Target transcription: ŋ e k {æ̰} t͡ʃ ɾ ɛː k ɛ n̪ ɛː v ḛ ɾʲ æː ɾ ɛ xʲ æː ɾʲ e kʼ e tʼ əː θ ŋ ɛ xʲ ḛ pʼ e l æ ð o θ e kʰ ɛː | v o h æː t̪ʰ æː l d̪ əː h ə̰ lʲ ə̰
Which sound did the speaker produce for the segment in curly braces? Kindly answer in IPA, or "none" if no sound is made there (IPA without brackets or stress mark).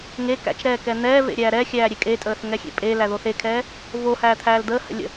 æ̰